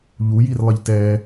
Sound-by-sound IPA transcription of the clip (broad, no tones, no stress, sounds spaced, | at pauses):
ʎ u j i r lˠ ɘ ʎ t ɛ